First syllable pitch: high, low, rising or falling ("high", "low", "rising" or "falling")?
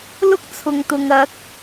high